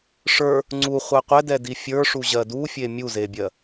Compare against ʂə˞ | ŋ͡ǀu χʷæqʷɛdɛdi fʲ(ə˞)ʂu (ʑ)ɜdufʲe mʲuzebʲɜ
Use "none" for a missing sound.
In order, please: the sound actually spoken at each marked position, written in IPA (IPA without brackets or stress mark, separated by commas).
ə˞, ʑ